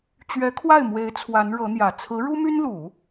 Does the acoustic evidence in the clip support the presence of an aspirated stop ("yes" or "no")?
yes